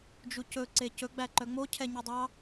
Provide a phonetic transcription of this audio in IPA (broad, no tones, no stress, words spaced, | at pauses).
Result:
d͡ʒucɵ ǀecɵ ɡ͡bæǃœŋ͡mo cʰɛɲudˤɑ